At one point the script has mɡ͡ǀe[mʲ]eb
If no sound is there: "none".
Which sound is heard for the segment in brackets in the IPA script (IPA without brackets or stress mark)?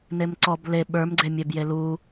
mʲ